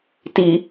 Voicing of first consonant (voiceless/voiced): voiceless